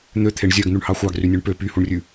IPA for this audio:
n̪øt̪ʰeɳ zʲœɡn̪ʉɳhɑ xʷɑɡrynʲøɳ pø pyhuɳrʲʉ

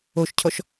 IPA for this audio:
oʃcʰɔʃ

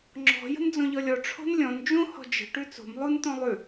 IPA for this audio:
ŋ͡ǁɔ̤ jə̤nd͡zõʎɔlʲɔ ʈ͡ʂʰo̤nlʲɔ̃n d͡ʒũ hɔ̤d͡ʒə̤ ʈʉt͡so̤m lˠun t̪õlˠʉ

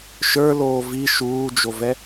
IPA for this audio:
ʃə˞ loːvi ʃuːd͡ʒovɛ

